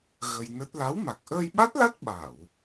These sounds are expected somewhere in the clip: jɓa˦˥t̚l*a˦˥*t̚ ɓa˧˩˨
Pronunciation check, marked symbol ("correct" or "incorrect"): correct